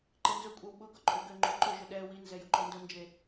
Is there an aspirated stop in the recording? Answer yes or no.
no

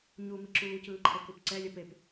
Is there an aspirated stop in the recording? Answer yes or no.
yes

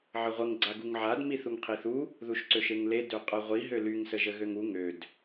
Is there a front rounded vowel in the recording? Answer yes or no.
yes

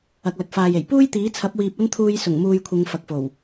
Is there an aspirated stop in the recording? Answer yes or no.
yes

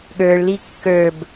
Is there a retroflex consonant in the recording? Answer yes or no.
yes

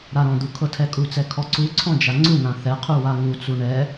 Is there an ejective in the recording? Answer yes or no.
yes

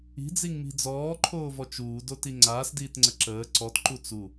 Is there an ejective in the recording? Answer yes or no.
no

